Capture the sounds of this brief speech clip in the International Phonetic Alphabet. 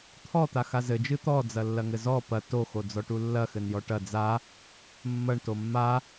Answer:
t̪ʰɔt̪axa zɘd͡ʒɨ t̪ɔd͡zɐlːɐŋɘ zɔ pɐ toxod͡zɔʈu lːɐxɘnjɔ ʈɐ d͡za | mːɐɳto mːa

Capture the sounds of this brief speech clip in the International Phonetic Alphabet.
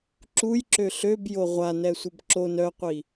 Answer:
ǁujǁø ɬøbjo ʁʷanɛsʷəb ǁon œqʷi

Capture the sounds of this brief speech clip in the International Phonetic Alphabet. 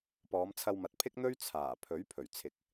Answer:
pɔː˨˧mt͡sʰɐ˧wmɐ˨t̚ pʰɪ˥k̚n̪ɵ˥ɥ t͡sʰaː˨˩pʰɵ˨˥ɥpʰɵ˨˩ɥ t͡sʰɪ˨k̚

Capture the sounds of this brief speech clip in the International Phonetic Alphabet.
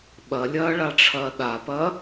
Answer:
ɓɐlʲɐː ɭaʈ͡ʂʰɐːɗapɐ

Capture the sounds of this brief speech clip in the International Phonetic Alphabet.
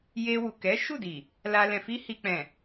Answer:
je˧wu˨ kɛ˨˦ ʃu˦˨di˨ | la˧ lɛ̃˨fi˧hi˨k͡pɛ̃˨

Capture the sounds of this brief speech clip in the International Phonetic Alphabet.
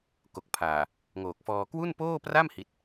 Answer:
ko˨˩k̚pʰaː˨˩ | ŋoː˨˩k̚fɔː˧ kwu˥˩npoː˥˩pra˥˩m hi˦˥t̚

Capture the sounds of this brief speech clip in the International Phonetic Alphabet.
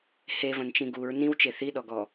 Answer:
hevɐ̃nt͡ʃĩ ɡuɹ nĩwt͡ʃe θiɗɔɡɔ

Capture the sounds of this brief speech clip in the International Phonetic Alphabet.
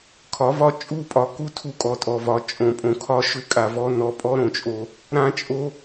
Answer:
kʰɒ˨˦vɒ˦ t͡ʃʼu˦˨pʼɒ˨ku˦ tʰu˦kʼɔ˨tʼɔ˨vɒ˨˦ t͡ʃʼõ˨pʼõ˨kʰɒ˦ ʃʏ˦kʼa˨ vɔ˦ nɔ˨pʼɔ˦ɾõ˨t͡ʃʼo˨ | ɾã˦t͡ʃʼo˦

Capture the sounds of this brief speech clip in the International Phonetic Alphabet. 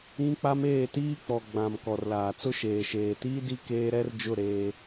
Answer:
ĩ˦ k͡pa˦meː˦˨ tiː˦k͡pɔ˨ɡ͡bã˨m kɔ˨rlaː˨t͡sʊ˦ ʃeː˨ʃeː˨tiː˦ di˦ keː˦ ɾɛ˦rd͡ʒʊ˦˨ ɾeː˦

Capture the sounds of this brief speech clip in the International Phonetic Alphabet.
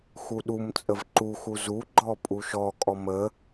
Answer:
xuɗumt͡sʼəv ǃuxu zu ɡ͡ǃɔpʼuʃɔkʼɔ mə

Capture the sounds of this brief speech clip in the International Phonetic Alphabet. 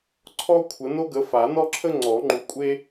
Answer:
ǀʰɔ˥kʷʰə˨˦ no˥ɡə˨˦ fa˨˩˦nɔ˥ǁʰə˥ ŋ͡ǀɔ˨˩˦ŋ͡ǃu˨˦kʷʼe˥

